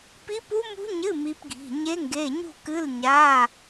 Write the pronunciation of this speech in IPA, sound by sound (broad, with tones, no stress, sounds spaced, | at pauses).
p i˦˥ p u˦˥ m ṳ˦˥ ɲ ɨ˧˥˧ m i˦˥ p ɡʱ i̤˧˥˧ ɲ e˦˥ ŋ ɡ e˧˥˧ ɲ ṳ˥˨ k ɨ˧˥˧ l ɲ a˧˥˧